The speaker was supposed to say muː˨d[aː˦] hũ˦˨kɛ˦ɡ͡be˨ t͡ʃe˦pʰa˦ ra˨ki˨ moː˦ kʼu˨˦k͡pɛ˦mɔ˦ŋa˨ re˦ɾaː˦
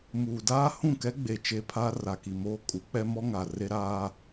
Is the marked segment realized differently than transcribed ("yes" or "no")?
no